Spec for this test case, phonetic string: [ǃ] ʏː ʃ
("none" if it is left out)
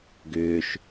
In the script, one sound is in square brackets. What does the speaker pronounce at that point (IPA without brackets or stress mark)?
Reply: ɡ